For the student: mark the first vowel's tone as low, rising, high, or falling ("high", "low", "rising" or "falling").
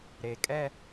low